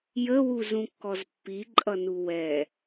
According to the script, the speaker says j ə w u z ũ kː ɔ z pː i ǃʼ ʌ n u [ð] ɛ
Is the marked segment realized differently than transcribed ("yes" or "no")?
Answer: yes